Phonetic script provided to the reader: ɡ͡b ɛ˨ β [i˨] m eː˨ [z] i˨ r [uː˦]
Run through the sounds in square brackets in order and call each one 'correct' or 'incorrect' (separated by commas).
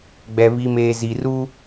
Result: correct, correct, correct